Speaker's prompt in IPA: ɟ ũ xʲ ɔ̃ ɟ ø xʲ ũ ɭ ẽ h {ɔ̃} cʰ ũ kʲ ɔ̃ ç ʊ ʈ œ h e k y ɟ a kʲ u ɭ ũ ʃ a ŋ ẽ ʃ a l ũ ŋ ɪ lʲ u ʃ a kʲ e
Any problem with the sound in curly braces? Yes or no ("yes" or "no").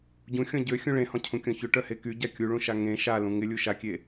no